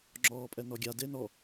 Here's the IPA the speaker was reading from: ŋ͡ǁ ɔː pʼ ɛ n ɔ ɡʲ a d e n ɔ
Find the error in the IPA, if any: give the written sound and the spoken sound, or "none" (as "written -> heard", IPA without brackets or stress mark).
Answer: none